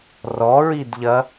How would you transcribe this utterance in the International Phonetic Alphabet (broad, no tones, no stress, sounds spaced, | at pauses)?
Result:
r ɔ ɹ i d ʎ ɐ